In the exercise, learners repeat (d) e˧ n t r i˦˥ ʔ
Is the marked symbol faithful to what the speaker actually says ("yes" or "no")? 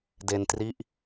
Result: yes